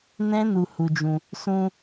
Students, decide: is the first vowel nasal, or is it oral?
nasal